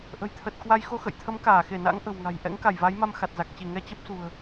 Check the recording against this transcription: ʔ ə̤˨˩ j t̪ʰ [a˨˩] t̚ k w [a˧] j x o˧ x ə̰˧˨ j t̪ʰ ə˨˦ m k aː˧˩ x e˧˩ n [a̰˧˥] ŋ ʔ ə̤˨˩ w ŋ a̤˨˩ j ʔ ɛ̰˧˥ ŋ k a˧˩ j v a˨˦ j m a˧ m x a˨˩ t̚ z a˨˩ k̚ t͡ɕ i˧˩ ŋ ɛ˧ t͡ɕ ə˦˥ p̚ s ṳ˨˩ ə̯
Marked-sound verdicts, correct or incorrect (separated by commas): incorrect, correct, correct